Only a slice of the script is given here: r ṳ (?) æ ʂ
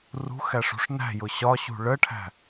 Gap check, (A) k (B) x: B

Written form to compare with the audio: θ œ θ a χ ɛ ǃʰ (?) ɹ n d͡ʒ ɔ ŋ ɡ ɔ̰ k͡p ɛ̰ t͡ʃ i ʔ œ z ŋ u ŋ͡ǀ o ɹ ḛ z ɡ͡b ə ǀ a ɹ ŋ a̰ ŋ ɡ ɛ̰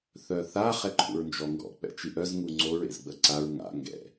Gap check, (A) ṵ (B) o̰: A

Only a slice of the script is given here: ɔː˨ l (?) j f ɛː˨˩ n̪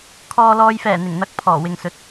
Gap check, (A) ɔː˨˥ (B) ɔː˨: B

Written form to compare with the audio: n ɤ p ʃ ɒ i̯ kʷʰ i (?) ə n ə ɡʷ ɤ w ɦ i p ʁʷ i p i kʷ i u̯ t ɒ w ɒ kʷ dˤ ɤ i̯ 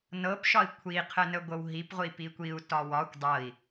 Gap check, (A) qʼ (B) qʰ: B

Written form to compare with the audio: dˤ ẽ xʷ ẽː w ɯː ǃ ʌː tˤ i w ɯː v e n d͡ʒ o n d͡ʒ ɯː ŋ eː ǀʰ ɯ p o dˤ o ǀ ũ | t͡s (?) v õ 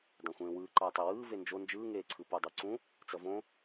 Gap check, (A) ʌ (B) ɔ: A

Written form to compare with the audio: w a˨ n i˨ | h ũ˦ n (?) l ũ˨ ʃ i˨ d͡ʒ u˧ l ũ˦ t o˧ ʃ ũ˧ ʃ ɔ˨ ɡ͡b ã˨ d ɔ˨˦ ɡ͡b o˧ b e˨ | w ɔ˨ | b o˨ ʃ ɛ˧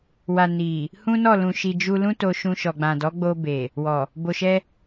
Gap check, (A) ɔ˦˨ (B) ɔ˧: A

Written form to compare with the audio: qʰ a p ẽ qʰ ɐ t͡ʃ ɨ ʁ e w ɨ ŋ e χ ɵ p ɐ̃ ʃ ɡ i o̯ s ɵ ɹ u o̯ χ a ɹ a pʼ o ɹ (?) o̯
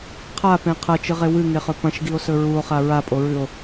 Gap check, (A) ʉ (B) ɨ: A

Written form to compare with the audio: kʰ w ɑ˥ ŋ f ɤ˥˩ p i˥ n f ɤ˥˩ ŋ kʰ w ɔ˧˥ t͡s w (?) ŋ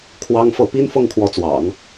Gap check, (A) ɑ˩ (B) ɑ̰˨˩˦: B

